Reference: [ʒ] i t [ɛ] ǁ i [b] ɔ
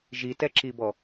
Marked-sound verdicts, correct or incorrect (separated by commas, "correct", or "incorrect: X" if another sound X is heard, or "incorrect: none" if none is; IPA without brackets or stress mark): correct, correct, correct